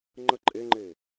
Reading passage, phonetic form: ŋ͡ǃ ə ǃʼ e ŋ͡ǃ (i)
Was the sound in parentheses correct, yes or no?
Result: no